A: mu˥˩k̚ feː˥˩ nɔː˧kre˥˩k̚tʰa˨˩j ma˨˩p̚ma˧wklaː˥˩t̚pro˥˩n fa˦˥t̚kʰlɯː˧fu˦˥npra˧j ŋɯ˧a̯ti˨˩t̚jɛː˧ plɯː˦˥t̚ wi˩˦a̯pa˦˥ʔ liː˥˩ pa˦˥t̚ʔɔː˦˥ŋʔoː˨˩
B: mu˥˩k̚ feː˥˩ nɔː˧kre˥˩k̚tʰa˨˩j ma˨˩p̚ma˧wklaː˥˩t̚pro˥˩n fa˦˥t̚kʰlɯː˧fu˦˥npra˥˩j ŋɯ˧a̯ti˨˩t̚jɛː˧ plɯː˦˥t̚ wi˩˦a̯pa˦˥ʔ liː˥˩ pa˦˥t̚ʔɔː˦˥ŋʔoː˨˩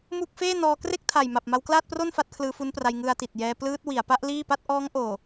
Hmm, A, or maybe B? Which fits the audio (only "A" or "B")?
A